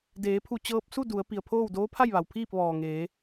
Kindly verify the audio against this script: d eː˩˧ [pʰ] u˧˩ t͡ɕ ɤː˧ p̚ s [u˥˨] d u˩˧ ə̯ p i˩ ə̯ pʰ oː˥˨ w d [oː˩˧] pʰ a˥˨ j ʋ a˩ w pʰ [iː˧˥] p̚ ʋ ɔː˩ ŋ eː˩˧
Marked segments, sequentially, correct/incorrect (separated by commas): correct, correct, incorrect, incorrect